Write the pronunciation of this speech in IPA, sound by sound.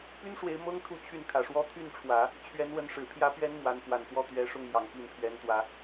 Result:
p y˥ n ʂ w e˧˥ ɪ̯ m ɤ˥ ŋ t̪ʰ u˥˧ t͡ɕʰ y˥˩ n kʰ ä˨˩ ʂ w ɔ˥ t̪ʰ y˥˩ n ʈ͡ʂʰ w ä˨˩˦ | t͡ɕʰ ɥ ɛ˧˥ n w ə˧˥ n ʂ ɻ̩˨˩ pʰ j ä˧˥ p ɥ ɛ˧˥ n m w a˧˥ n f w a˨˩ n x w ɔ˥˩ t̪ ɥ ɛ˧˥ ʂ ʊ˥˩ ŋ m j ɑ˨˩ ŋ p i˥˩ n pʰ ɥ ɛ˧˥ n t̪ w ä˧˥

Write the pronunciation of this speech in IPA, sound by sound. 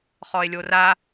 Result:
χ ɔ e̯ lʲ o r a

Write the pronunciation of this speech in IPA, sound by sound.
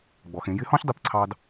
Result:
ɡ͡b ɔ˩ x ẽ˩˧ j ɪ˧˥ h ɔ̃˥ ç dˤ i˧ p ǀʰ ɑ˧ d

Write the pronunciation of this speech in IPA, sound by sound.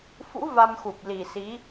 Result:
f ṵ˧˥ v a˧ m x u˨˩ p̚ l i˨˩ s i˨˦

